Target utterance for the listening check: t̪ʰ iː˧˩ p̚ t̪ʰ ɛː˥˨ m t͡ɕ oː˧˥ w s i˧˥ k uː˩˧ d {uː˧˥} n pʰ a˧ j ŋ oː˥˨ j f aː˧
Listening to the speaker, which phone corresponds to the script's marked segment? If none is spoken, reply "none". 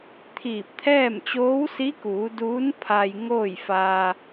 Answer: uː˧˥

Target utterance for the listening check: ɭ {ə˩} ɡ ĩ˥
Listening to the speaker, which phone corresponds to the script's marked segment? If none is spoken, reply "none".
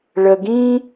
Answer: ə˩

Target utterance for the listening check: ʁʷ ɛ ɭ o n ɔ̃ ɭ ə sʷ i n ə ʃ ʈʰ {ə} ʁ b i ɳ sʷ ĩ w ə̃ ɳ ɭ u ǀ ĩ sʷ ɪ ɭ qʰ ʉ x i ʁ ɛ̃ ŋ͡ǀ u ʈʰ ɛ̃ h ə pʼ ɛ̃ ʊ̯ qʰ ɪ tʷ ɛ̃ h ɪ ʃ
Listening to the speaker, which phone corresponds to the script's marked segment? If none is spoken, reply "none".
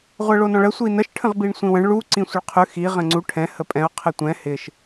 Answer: ə̃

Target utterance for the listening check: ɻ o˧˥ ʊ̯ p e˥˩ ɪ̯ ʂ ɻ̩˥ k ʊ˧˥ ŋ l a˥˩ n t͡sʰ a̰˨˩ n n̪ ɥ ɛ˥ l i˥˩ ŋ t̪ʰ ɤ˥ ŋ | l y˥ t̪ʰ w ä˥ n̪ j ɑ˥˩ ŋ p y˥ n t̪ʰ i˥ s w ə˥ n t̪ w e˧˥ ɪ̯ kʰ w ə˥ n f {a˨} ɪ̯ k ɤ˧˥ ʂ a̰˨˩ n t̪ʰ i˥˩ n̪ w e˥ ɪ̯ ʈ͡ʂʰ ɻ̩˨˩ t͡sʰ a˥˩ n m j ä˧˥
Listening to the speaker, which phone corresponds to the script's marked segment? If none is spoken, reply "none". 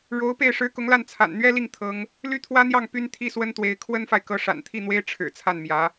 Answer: a˨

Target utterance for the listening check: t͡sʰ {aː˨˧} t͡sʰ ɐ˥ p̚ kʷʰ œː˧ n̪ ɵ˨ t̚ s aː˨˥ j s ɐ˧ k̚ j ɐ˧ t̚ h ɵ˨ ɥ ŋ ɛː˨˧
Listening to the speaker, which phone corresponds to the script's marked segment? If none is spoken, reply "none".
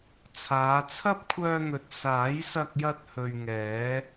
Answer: aː˨˧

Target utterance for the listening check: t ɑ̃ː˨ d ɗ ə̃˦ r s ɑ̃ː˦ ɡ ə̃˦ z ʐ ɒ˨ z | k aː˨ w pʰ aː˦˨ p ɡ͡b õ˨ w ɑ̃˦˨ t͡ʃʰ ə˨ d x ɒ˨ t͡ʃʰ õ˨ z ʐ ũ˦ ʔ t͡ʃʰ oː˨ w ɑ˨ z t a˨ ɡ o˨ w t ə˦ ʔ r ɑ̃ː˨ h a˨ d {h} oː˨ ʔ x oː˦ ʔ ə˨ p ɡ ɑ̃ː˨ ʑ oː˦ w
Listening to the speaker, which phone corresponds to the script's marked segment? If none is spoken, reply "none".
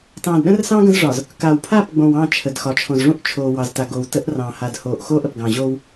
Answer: h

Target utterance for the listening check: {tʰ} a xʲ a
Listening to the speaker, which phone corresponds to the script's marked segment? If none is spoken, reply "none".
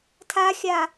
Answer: tʰ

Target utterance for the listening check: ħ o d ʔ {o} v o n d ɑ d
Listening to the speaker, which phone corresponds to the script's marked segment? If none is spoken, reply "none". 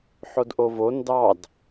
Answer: o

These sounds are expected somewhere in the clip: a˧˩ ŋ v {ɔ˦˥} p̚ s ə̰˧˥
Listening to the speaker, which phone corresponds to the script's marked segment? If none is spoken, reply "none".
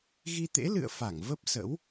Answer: ə˦˥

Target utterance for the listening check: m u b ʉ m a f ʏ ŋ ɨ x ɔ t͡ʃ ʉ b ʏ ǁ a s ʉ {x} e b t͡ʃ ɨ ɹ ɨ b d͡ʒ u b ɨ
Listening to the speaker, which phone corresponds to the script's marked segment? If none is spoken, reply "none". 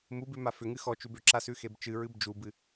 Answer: x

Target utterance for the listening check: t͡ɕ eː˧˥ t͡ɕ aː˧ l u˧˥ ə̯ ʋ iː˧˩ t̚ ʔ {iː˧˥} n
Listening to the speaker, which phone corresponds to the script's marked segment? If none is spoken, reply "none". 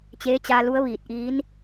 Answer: iː˧˥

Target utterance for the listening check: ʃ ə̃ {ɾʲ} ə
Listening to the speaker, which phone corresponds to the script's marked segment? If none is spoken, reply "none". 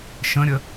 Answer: ɾʲ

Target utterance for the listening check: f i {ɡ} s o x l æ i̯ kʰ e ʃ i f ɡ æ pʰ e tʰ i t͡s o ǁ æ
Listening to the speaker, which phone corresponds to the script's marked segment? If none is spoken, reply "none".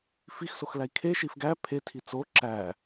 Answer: x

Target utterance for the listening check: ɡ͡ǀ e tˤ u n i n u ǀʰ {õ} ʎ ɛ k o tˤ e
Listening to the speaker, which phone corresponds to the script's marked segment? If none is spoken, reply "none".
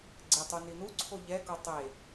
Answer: o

